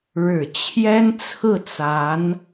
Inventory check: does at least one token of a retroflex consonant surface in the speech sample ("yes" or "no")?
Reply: yes